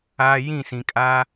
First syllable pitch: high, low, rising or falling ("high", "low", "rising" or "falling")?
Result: high